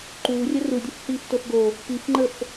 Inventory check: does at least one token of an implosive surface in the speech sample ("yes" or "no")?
no